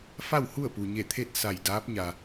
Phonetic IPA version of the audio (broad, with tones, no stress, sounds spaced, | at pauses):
f a˥˨ w h u˥˨ ə̯ p u˩ ɲ e˧˩ t̪ʰ e˥˨ t̚ s a˧˩ j d aː˧˥ p̚ ɲ a˩